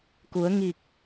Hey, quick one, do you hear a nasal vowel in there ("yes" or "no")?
no